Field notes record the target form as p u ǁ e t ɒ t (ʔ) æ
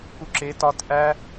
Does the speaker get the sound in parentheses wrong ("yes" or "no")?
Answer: no